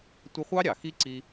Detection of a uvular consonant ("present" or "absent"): present